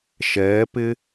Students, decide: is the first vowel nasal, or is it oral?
oral